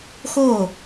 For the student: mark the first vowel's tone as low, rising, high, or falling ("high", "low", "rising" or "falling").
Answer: falling